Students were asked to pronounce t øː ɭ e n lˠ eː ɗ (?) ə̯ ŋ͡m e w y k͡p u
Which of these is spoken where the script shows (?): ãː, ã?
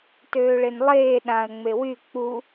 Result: ã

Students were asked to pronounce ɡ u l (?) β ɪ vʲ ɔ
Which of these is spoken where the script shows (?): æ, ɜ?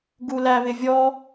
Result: æ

